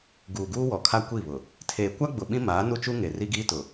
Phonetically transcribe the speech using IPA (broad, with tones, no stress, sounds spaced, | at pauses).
ɡ uː˨ ɡ uː˦ w ɔ˨ kʰ a˦ kʷ i˦˨ β ʊ˨ | tʰ eː˨ kʷ a˦ ɡ͡b ʊ˨ ɓ ĩ˦ m aː˨˦ n u˦ t͡ʃ u˦ ŋ e˨ r i˦ ɡ iː˦ t ʊ˨